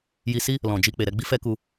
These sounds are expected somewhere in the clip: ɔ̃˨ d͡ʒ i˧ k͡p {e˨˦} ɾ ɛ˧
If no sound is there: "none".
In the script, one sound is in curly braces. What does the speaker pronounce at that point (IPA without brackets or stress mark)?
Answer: e˨